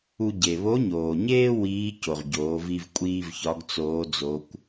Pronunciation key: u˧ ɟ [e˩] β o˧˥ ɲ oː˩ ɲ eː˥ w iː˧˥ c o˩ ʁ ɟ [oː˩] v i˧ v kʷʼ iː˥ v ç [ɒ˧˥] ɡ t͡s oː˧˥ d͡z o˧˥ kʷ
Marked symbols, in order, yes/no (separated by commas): yes, no, yes